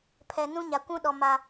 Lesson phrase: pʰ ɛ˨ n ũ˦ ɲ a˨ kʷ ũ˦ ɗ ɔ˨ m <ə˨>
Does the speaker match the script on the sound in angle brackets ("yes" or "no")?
no